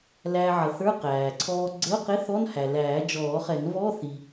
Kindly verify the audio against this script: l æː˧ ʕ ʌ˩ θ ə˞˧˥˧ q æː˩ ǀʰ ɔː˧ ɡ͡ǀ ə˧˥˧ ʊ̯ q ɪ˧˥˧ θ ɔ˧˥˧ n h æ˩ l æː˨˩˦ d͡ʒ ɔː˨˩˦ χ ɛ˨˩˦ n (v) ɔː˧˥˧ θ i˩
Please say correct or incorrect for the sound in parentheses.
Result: correct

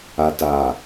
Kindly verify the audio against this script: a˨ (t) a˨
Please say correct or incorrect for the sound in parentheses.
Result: correct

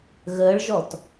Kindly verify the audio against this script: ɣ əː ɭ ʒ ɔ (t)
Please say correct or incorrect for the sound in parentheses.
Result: correct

